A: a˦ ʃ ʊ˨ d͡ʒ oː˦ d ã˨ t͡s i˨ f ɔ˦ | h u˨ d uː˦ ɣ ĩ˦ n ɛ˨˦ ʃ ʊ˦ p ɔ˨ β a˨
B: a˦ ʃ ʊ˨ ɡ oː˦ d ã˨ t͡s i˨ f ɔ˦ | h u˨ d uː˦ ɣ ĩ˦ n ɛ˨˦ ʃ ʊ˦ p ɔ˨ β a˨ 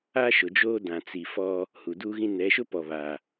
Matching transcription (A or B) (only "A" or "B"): A